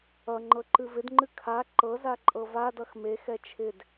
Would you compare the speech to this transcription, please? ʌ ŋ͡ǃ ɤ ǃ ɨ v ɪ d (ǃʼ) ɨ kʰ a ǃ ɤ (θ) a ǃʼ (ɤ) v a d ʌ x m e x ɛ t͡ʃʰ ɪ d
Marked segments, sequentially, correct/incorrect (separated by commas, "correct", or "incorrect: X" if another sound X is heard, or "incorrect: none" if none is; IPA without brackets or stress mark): incorrect: ŋ͡ǃ, incorrect: z, correct